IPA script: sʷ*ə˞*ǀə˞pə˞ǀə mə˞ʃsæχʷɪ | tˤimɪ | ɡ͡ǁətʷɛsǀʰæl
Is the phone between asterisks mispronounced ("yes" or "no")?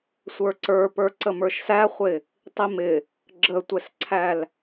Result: no